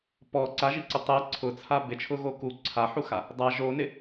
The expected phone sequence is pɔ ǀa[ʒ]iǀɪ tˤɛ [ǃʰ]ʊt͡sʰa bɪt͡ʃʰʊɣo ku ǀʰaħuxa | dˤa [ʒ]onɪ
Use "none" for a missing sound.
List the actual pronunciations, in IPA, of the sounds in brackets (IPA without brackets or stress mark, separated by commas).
ʒ, ǀʰ, ʒ